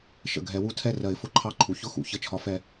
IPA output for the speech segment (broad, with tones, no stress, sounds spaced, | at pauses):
ʃ ə̰˨˩ ɡʱ ɛ˨˩˦ w u˧˥ tʰ ɛ˥˩ r ɜ˨˩˦ ɪ̯ f ʊ˨˩˦ ǃʰ ɑ˧˥˧ ǃʰ u˨˩ ç ʊ˥˩ x ṵ˨˩ ç ə˥˩ t͡ʃʰ ɒ˧˥ f ɛ˧˥